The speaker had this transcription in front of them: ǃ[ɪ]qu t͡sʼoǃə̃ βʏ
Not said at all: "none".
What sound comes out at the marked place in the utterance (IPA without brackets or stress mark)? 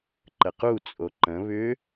ə